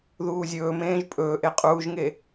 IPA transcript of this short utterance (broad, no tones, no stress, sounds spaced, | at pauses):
ð uː zʲ ɵː m ẽː ʒ pʼ ɵː ʔ e qʼ uː ʒ ŋ e